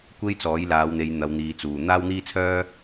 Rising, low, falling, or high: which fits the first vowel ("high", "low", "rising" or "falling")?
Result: high